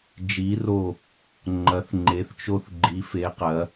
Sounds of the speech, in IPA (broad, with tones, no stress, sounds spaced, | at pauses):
d͡ʒ i˧˥ r o˦˨ | ŋ͡ǃ ɐ˧˥ θ ŋ͡ǃ e˧˥ θ t͡ʃ o˥ θ ɡ͡ǃ i˧˥ f e˧˥ q ɐ˧˥